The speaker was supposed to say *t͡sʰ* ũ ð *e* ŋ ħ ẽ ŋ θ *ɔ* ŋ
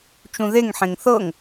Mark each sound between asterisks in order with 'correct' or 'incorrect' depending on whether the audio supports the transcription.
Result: incorrect: t͡ʃ, correct, incorrect: ɤ

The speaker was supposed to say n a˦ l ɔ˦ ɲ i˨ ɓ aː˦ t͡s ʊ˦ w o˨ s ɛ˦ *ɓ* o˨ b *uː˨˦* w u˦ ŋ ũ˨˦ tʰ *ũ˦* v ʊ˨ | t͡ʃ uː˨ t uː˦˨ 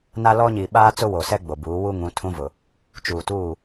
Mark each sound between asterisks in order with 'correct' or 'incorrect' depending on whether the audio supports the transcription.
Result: incorrect: ɡ͡b, correct, correct

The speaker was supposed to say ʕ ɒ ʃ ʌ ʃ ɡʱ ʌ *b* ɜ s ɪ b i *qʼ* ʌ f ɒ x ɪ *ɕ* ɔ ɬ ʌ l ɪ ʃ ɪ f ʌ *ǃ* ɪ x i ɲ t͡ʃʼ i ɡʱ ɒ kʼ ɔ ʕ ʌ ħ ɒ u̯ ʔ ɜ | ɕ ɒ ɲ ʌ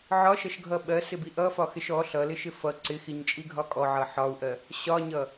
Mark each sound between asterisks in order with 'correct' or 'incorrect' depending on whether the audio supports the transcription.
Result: incorrect: ɓ, incorrect: ʔ, incorrect: ʃ, incorrect: ǀ

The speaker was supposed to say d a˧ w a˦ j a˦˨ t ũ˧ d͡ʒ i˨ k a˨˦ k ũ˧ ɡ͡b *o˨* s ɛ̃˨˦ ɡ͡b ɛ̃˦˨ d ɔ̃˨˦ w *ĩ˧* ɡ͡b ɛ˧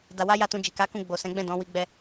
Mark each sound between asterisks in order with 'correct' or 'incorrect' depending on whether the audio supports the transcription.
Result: correct, incorrect: i˧

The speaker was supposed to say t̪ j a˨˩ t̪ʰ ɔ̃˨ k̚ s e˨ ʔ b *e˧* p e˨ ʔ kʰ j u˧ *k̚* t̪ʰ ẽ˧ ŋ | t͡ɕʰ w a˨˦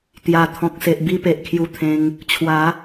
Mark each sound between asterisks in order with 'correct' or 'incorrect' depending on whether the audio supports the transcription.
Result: incorrect: i˧, incorrect: none

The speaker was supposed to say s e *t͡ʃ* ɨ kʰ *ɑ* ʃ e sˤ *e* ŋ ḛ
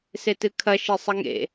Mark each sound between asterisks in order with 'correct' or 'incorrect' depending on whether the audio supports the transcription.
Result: incorrect: t, incorrect: ɐ, incorrect: ɘ

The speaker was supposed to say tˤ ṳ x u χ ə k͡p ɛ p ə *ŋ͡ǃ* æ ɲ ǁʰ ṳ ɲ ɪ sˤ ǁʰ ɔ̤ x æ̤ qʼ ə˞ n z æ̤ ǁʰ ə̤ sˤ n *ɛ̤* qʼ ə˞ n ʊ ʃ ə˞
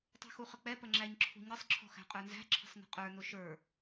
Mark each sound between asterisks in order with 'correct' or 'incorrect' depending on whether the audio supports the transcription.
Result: incorrect: ŋ͡ǁ, incorrect: ə̤

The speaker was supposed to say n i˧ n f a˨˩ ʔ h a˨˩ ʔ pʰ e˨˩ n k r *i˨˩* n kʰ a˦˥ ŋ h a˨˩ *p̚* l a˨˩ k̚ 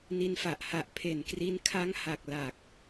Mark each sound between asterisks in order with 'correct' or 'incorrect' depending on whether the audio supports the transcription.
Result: incorrect: i˧, incorrect: k̚

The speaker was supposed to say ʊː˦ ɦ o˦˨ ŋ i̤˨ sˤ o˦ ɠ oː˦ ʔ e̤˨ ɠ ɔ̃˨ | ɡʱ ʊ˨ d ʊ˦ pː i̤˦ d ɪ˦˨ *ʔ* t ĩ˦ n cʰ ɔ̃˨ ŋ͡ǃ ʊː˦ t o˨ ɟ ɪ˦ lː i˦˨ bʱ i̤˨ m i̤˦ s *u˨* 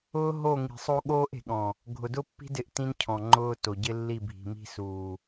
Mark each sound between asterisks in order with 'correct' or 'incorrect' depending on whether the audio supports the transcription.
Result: correct, incorrect: uː˨

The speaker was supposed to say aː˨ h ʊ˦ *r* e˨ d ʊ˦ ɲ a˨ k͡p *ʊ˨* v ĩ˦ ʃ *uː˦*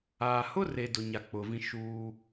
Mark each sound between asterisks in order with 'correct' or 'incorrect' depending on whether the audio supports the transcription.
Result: correct, correct, correct

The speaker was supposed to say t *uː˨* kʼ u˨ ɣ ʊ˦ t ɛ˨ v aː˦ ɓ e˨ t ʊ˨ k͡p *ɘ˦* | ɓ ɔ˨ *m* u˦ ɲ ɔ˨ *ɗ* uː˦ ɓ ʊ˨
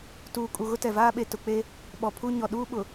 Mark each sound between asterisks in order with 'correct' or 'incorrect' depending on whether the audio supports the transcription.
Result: correct, incorrect: e˦, incorrect: pʰ, correct

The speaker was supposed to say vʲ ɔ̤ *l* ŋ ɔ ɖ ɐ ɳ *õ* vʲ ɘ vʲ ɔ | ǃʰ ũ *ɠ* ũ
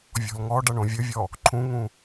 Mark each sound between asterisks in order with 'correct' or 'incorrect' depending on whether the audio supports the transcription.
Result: correct, correct, incorrect: ŋ

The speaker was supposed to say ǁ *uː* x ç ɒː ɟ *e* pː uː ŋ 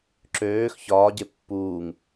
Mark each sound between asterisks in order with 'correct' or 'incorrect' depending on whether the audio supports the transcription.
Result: incorrect: øː, correct

